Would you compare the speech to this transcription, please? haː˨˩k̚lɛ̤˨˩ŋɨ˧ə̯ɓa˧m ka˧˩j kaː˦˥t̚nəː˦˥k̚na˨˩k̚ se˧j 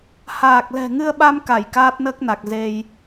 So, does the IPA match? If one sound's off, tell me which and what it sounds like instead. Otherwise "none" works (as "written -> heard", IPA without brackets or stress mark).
s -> z